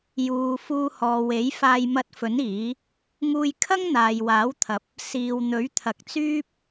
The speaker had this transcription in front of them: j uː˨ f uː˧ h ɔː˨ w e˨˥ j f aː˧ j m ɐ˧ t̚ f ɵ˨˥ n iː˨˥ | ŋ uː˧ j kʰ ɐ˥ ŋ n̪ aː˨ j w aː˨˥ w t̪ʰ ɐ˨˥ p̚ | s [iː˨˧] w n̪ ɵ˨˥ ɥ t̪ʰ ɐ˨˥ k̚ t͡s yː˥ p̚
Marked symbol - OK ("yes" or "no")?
no